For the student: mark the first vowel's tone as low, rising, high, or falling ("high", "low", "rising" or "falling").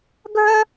high